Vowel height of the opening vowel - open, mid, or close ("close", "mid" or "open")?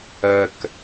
mid